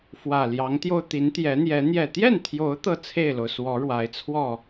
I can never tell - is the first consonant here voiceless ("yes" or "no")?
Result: yes